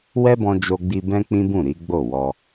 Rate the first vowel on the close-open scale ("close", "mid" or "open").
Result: mid